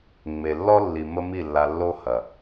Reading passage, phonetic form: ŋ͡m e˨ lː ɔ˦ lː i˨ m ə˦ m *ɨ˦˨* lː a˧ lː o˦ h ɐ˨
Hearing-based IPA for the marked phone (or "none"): i˦˨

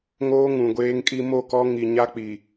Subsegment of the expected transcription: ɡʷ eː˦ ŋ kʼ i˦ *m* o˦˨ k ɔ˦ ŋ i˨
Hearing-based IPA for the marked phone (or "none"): m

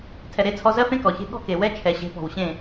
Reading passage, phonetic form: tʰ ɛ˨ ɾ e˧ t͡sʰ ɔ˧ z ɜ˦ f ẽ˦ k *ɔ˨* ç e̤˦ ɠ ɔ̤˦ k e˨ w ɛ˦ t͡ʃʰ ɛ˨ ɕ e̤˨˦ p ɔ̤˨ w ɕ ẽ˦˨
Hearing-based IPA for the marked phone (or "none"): ɔ˨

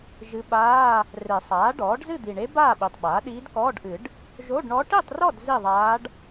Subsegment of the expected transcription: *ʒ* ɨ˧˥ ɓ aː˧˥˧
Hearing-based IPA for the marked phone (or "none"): ʒ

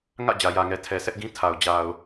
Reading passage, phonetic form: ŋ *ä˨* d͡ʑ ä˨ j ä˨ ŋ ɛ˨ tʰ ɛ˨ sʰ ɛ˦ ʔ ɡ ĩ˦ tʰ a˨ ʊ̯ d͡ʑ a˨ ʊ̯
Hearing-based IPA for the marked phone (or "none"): ä̰˦˨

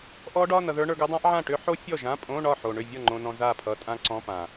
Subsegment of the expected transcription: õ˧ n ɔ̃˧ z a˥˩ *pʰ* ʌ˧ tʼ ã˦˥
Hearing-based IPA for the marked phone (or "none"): pʰ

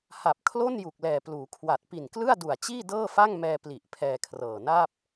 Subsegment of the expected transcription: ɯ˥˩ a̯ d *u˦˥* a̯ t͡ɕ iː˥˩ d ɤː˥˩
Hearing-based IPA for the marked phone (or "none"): u˨˩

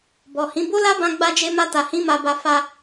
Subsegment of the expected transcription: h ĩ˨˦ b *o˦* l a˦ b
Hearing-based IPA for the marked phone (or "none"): o˦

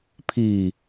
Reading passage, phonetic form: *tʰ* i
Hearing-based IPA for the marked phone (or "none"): pʰ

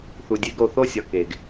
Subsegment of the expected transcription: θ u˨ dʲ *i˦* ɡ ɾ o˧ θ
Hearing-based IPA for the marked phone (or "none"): e˦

